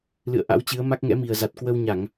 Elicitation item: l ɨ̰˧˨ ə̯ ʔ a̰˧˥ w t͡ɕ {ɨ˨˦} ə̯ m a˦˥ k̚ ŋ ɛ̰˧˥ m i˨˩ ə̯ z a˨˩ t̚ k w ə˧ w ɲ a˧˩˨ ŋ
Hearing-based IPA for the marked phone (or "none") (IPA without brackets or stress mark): ɨ˨˦